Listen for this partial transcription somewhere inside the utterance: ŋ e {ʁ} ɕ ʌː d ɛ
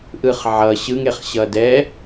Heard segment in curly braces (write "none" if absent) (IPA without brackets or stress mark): χ